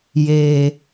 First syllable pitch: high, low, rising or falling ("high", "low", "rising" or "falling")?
low